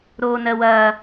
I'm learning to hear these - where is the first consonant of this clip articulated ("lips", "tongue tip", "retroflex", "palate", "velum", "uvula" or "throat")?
tongue tip